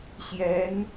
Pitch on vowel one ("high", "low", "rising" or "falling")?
rising